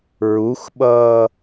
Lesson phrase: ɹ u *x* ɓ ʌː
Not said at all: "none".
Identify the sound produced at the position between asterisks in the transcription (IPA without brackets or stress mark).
x